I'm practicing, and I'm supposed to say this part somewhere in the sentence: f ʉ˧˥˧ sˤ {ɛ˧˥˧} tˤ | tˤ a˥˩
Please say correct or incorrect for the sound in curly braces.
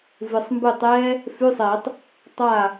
incorrect